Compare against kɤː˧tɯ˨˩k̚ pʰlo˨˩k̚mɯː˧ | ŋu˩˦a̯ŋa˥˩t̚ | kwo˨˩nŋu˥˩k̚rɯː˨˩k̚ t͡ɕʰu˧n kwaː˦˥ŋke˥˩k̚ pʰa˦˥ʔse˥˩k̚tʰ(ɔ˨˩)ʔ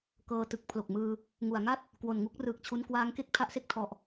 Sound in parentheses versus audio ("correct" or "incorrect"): correct